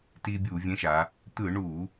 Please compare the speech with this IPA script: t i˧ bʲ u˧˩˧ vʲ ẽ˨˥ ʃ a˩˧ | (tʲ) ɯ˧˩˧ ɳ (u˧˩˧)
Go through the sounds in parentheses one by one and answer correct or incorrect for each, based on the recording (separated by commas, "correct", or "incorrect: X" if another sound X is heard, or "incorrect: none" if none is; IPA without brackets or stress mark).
incorrect: t̪, correct